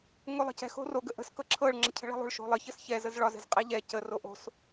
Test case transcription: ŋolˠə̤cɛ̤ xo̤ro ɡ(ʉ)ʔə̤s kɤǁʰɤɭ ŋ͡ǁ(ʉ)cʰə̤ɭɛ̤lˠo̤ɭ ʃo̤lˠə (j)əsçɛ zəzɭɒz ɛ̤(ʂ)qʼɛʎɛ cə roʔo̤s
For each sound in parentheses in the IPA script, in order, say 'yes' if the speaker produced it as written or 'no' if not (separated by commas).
no, no, no, no